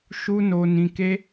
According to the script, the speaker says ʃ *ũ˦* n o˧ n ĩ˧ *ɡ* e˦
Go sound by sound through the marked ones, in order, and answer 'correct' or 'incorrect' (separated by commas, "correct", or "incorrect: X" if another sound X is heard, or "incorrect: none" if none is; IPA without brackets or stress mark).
incorrect: u˦, incorrect: k